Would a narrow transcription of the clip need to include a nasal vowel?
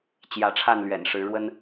no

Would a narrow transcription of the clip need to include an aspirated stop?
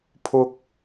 yes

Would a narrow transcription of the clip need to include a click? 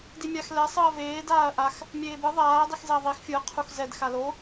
no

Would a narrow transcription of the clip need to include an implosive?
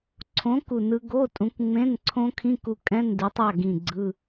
no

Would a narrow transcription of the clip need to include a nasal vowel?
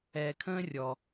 yes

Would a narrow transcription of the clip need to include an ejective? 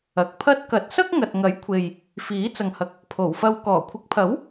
no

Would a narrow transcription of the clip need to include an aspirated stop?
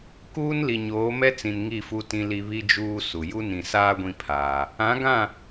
yes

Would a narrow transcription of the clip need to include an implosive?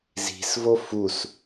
no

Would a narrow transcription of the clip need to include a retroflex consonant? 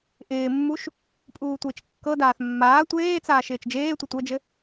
no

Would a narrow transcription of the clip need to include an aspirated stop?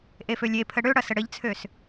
yes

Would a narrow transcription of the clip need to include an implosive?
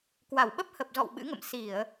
yes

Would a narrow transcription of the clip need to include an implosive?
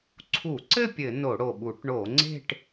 yes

